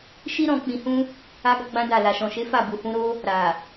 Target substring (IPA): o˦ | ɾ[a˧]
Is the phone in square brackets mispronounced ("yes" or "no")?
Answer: yes